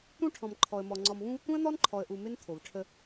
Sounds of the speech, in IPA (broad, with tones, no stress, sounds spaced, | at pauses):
t̪ ũ˦ ʈʰ ɔ̃˨ m ǃʰ ɔ˨ ə̯ m ɔ˨ ŋ͡ǀ ɔ˨ m v ũ˦ v t̪ ũ˦ ə̯ n̪ ɔ˦ n ǃʰ ɔ˨ ə̯ ʔ u˨ m ɪ˦ n t̪ʰ o˨ v ʈʰ ə˦